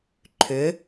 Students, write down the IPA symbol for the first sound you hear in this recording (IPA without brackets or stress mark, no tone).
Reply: ǃʰ